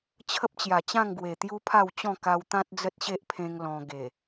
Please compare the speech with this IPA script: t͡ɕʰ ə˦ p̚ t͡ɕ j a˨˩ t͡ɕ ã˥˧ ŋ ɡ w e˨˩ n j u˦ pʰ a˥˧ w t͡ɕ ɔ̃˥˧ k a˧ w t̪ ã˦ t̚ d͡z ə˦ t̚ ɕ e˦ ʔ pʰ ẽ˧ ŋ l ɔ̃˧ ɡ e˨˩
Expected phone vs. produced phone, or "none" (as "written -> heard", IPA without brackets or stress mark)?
n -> t̪